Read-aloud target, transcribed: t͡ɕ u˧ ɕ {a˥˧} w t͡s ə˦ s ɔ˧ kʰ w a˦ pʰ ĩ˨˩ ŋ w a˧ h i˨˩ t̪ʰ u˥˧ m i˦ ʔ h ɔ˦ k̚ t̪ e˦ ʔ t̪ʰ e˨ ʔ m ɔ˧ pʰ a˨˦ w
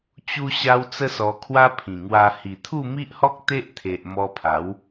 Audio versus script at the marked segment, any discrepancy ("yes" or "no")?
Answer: yes